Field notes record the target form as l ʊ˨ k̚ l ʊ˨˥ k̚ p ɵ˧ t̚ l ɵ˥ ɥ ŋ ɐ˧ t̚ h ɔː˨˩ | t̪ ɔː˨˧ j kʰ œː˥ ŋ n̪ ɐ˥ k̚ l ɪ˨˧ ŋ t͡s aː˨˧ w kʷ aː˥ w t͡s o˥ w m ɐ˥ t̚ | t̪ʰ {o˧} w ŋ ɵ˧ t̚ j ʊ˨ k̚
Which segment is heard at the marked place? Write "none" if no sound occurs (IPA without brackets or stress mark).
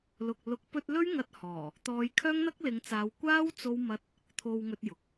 o˧